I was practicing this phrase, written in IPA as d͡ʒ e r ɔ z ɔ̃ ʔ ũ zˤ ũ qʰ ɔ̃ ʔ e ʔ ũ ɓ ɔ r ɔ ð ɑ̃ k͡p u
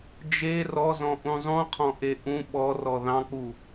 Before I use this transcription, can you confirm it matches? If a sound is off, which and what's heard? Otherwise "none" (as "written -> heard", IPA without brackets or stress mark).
none